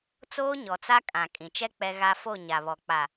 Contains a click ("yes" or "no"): no